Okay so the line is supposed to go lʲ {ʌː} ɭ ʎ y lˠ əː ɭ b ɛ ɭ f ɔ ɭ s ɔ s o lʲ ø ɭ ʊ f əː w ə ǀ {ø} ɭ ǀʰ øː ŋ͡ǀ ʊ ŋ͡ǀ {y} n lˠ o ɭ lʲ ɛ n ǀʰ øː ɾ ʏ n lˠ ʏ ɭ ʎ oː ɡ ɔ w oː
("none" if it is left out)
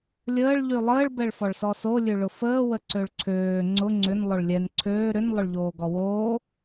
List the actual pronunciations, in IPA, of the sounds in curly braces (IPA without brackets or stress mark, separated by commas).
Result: əː, ø, ʏ